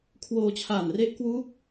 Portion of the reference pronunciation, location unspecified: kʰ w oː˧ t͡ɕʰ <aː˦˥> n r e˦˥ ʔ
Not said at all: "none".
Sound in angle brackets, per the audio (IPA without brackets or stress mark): aː˨˩